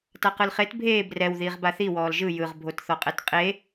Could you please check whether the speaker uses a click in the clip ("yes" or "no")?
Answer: no